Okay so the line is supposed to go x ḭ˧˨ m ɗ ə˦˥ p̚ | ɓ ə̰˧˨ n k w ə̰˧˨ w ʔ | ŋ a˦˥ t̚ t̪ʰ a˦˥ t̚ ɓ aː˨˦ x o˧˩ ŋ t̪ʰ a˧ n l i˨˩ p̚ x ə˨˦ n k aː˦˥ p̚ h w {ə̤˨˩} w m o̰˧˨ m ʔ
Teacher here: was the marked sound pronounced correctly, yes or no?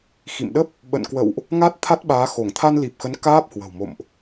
yes